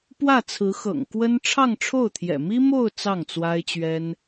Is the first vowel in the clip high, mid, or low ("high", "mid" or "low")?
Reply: low